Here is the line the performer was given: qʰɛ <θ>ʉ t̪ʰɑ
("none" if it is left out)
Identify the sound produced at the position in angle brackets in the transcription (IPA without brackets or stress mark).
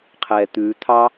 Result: t̪